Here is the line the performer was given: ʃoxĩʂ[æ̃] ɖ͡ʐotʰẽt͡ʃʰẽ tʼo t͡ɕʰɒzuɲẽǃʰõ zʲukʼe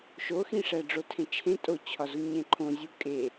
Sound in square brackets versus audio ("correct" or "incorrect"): incorrect